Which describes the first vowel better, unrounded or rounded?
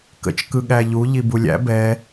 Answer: unrounded